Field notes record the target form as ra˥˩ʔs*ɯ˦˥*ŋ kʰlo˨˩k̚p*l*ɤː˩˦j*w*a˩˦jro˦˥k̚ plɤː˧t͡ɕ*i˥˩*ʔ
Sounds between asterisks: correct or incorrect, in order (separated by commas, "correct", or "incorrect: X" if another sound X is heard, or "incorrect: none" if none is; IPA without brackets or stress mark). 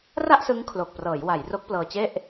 correct, incorrect: r, correct, incorrect: e˥˩